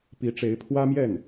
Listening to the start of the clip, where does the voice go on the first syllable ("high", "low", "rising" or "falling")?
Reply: rising